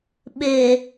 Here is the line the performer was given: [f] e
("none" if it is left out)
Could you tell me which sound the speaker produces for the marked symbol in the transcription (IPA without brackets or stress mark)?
ɓ